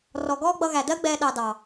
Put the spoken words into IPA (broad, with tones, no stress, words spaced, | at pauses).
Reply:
rɔ˨ɡɔː˦ɡ͡bʌ˧ɣæ˨ dɜ˦ɡ͡bɛː˧ ɗɑ˧dɑ˨